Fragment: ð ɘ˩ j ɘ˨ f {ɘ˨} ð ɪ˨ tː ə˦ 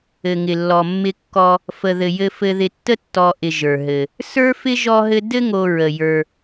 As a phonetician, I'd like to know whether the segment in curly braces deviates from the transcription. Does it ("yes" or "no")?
no